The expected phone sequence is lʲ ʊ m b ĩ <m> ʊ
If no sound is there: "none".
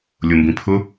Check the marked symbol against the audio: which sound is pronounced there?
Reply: pʰ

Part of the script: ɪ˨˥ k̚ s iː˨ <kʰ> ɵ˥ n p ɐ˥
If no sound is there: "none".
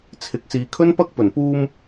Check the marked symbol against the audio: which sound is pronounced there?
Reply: kʰ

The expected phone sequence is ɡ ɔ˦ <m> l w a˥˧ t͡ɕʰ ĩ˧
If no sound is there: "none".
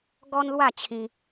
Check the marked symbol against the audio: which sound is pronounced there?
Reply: n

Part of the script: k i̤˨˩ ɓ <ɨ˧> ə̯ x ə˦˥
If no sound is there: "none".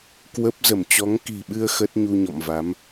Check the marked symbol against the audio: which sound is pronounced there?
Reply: ɨ˧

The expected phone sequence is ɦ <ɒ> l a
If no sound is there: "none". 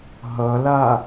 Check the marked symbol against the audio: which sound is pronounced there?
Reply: ʌ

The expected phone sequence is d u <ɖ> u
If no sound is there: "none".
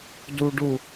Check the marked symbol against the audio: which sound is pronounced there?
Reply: ɖ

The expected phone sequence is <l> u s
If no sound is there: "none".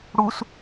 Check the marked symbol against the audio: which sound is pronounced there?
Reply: ɽ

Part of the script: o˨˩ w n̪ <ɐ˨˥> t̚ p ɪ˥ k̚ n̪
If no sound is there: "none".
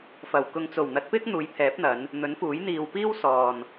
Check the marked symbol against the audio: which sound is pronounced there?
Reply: ɐ˨˥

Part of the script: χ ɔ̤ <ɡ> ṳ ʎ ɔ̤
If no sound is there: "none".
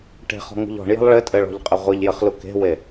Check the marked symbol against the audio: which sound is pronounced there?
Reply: ŋ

